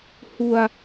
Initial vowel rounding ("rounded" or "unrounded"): rounded